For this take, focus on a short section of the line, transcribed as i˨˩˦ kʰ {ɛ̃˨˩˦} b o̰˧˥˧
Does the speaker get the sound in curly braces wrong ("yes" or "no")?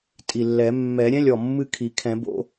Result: no